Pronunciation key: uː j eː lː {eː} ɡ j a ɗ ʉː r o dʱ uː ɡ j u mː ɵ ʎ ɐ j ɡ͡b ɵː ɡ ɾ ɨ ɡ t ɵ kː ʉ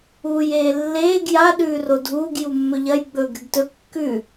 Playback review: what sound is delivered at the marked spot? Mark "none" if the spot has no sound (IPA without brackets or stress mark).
eː